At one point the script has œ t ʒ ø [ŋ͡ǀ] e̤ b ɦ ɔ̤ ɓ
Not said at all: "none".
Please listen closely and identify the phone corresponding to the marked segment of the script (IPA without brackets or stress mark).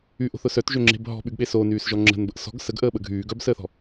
ŋ͡ǁ